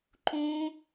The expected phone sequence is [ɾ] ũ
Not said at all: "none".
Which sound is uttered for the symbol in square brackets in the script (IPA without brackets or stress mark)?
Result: ǃ